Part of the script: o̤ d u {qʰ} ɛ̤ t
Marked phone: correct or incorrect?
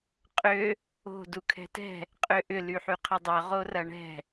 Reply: incorrect